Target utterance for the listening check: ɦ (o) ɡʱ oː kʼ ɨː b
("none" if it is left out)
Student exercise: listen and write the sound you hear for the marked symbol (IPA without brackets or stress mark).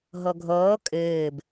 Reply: o